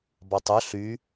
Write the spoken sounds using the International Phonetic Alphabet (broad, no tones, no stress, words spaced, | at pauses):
bɑtˤʊ ɬy